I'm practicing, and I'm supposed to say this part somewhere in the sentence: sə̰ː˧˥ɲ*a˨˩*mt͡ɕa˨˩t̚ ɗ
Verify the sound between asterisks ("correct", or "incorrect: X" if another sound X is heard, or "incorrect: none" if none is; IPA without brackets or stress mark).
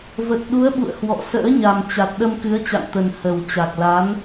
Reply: correct